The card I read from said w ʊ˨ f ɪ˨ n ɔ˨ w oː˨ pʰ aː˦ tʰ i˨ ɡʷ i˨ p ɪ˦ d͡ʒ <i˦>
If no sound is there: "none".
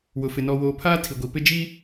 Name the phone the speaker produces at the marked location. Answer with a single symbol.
i˦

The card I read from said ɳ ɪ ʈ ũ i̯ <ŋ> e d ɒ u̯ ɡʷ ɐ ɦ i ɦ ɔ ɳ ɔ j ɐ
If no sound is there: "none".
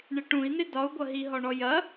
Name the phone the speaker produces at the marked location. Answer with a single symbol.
n̪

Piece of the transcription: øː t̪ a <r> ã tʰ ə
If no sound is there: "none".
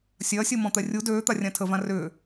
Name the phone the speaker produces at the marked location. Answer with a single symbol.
rʲ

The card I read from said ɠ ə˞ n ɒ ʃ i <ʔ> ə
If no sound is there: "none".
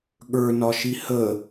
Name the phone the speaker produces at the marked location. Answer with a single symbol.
h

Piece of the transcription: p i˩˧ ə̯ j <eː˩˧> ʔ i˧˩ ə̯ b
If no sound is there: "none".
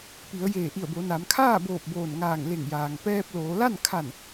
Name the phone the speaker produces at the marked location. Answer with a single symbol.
eː˧˩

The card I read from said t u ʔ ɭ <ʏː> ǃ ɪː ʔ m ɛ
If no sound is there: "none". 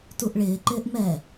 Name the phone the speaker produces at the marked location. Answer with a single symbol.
ɪː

